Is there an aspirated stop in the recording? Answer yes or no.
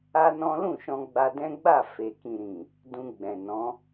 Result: no